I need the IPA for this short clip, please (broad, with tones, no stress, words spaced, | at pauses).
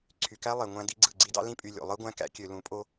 ǀʰy˨kæ˦lˠe˨ ŋʷæ̃˦di˦ɡ͡ǀɯ˦˨ ɡ͡ǀi˦dɑ̰˦ lĩ˦pʼy˨ lʲo̰˨ lˠɯ˦ɡʷæ̃˦kæ̰˦ kʲø˨lũ˨˦pʼo˦